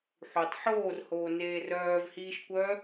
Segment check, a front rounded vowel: present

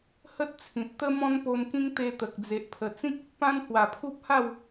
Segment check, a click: absent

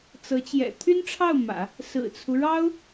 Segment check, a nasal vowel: absent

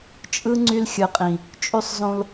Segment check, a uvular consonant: present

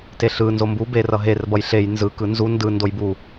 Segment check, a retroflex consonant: absent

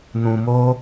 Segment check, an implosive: absent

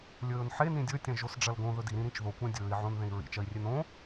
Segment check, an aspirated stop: absent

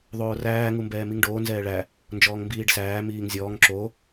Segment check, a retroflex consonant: present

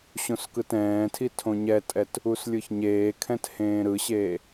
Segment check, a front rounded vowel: absent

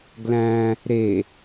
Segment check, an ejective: absent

